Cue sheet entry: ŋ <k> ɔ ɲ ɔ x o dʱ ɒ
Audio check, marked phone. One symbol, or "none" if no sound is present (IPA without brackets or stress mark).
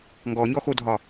ɡ